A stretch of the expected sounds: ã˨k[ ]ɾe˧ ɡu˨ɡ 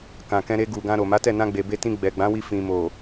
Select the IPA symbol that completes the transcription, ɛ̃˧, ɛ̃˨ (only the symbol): ɛ̃˧